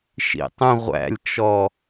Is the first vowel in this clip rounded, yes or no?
no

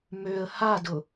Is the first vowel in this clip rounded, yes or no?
yes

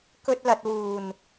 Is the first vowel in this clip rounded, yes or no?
yes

